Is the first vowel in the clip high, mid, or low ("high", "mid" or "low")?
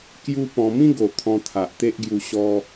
high